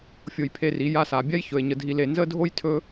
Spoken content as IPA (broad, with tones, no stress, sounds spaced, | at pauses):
fʲ o˧ j pʰ e˧ r i˨˦ j a˧ s a˨ bʲ a˦ j ç ɵ˨ e̯ ɲ ə˧ dʱ i˧ l e˧ n z ə˦ dʱ o˦ j tʰ ɵ˦